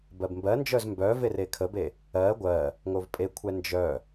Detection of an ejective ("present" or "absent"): present